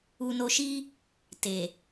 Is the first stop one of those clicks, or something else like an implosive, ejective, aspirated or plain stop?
plain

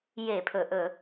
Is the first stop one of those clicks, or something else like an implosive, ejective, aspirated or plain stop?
aspirated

